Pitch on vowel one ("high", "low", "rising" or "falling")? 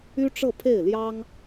high